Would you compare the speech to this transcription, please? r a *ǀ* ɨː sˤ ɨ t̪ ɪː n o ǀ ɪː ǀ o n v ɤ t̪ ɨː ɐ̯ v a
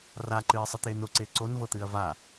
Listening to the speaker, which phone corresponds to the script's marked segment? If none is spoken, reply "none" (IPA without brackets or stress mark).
ǃ